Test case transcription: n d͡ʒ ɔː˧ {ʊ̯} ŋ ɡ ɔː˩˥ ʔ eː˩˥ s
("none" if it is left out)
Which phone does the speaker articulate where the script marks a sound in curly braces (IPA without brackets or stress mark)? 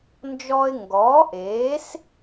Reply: ɪ̯